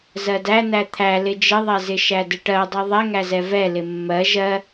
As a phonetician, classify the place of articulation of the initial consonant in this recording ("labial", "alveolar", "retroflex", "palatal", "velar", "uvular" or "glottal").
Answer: alveolar